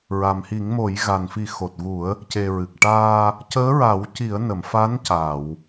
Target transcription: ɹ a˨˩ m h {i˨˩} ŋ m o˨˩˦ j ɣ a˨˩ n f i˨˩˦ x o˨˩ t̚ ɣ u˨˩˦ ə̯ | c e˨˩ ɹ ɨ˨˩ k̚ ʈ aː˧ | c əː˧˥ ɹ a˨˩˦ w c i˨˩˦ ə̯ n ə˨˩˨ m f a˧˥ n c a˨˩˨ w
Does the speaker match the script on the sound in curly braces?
no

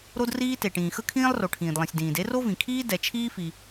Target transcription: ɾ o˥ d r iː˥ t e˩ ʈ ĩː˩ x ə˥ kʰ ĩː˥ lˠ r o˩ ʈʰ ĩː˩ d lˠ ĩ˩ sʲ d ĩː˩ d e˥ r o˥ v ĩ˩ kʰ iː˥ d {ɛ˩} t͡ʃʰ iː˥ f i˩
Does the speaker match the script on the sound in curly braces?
yes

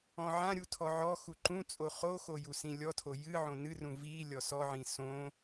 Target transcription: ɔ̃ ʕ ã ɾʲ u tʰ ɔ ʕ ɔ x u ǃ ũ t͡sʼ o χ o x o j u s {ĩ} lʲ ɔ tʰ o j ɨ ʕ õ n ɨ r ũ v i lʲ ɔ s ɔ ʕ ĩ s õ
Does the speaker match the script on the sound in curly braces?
yes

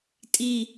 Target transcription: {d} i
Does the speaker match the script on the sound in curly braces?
no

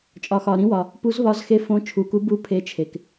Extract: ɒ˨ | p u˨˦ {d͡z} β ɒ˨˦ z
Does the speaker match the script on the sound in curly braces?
no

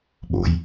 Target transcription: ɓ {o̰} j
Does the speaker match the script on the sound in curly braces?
yes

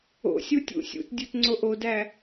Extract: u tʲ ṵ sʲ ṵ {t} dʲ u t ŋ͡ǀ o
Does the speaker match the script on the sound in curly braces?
yes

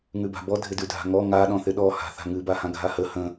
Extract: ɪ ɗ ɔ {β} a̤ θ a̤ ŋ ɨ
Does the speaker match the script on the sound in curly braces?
no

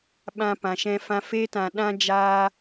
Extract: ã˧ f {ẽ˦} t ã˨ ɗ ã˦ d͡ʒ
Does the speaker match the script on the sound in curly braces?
no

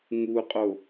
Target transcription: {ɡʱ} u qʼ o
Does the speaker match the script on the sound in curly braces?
no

